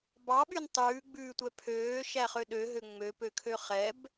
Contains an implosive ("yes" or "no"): yes